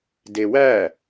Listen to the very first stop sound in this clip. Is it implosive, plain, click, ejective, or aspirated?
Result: plain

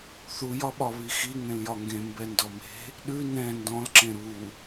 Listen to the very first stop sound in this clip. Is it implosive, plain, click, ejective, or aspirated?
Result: implosive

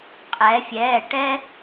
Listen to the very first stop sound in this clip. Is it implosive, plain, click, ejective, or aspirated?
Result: ejective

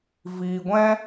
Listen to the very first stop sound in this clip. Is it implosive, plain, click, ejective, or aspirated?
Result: plain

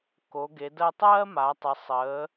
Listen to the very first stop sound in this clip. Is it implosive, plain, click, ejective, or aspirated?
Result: plain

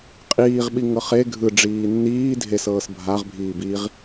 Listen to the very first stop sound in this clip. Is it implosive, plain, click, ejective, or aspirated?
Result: ejective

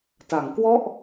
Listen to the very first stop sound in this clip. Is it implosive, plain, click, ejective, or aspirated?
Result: plain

